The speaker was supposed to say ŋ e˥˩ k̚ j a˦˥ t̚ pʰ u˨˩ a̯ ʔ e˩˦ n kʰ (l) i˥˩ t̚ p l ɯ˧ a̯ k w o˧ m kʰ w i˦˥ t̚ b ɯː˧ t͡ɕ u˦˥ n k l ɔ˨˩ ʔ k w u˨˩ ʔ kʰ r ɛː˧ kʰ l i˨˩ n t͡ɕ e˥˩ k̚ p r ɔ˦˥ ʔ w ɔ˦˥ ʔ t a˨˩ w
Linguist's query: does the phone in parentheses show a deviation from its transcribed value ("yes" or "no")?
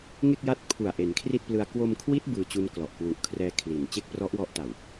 yes